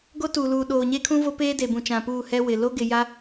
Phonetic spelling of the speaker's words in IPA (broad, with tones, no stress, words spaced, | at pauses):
ɡo˦tu˨luː˨ ɗoː˨ɲe˦kʰũ˦vo˦ peː˦ de˨bũ˨t͡ʃã˨puː˦˨ hɛ˦wɪ˨ lo˦ɡɪ˨ ja˦